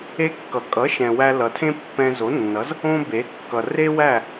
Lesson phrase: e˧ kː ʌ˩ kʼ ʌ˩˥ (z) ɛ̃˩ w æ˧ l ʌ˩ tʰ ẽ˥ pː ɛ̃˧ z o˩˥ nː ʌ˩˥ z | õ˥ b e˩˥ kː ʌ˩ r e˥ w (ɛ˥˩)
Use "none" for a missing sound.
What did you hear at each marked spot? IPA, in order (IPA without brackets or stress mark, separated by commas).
ʃ, æ˥˩